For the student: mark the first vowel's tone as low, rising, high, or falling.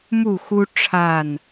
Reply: falling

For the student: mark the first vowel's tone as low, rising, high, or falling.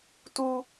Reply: high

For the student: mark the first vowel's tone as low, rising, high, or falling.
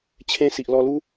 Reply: high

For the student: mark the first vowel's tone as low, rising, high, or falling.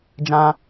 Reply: high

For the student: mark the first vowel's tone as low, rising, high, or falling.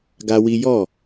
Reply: high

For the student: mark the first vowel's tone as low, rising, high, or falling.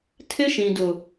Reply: high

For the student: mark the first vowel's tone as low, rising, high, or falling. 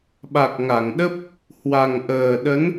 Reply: low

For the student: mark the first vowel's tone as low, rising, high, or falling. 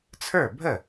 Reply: falling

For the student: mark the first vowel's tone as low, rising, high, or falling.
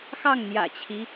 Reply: falling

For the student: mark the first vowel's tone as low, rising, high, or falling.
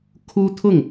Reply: high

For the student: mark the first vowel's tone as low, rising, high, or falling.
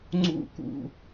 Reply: falling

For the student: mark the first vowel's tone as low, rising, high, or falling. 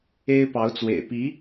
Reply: high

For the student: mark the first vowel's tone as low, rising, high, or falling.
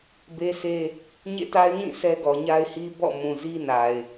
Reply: high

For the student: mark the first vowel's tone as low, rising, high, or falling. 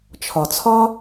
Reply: low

